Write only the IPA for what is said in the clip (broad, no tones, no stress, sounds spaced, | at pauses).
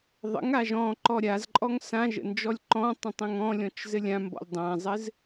ðˤ ə̰ ŋ a ʒ ɔ̃ ǃ ɔ ɾʲ a z ǃʼ ɔ ŋ s ã ʒ ə̰ n d͡ʒ ɔ lʲ ǃ ɔ̃ tˤ ə̃ tˤ ə̃ ŋ ɔ̃ lʲ ɔ̃ t͡ʃ z ɘ lʲ ã m b ɔ̰ lʲ dˤ ã zˤ ɘ z